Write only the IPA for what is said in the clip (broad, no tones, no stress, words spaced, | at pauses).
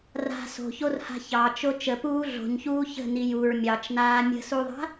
ra̤ so̤çorha̤ çɑt͡ʃo t͡ʃəpuː ɮo̤ɲçuː çə̤ni juɹ mʲɑt͡ʃnaː mʲə̤suðˤa̤